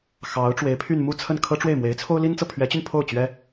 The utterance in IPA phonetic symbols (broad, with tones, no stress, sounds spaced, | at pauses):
x ɑ˧˥ ʊ̯ ʈ͡ʂ w e˧˥ ɪ̯ pʰ y˥˧ n m u˥˧ t͡sʰ ə˥˩ n kʰ ɤ˥ ʈ͡ʂ w e˥˩ ɪ̯ m w e˧˥ ɪ̯ t͡sʰ o˥ ʊ̯ l i˥ n t͡s ɤ˨ pʰ ɥ ɛ˧˥ t͡ɕ y˧ n pʰ o˥˩ ʊ̯ t͡ɕ ɥ ɛ˥